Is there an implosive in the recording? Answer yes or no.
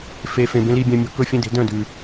no